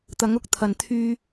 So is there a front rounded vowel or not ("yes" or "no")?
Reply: yes